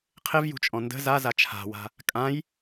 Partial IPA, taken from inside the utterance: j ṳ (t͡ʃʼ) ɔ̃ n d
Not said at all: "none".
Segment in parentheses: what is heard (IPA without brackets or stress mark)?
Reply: t͡ʃʼ